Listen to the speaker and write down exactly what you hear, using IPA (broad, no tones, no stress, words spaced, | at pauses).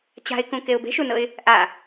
t͡ɕa̤ɪ̯kũkeʊ̯ be̤ʃunɤɪ̯ | ʔa